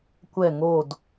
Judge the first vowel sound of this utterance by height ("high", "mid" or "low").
mid